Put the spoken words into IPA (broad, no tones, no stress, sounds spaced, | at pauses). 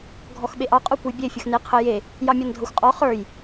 ɡʱ ɔ x ɓ e ʔ ɑ qʼ o kʷ ə j bʲ e fʲ ə x n e qʰ ə j e | j ɑ mʲ ɒ n dʱ ɤ xʷ qʼ ɔ χ ə˞ j